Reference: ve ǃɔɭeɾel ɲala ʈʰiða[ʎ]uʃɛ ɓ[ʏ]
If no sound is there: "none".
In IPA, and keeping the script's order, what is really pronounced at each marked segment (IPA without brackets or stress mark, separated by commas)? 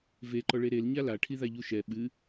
ʎ, ɨ